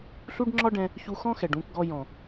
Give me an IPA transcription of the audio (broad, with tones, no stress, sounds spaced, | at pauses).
ɬ u˦ ɖ ŋ͡ǁ ɒ˦ ɖ ɛ̃˧ | ç u˧ x ɔ̃˦ x ɛ˨ ɖ ũ˧ k ɡ ɔ˧ j ɔ̃˨